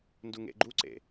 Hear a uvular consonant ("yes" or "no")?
no